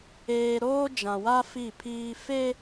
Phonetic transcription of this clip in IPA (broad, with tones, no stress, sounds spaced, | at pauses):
eː˦ ɾ oː˦ d͡ʒ ã˨ w a˦ f i˦˨ pʰ iː˦ f e˦